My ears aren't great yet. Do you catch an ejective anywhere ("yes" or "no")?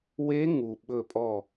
yes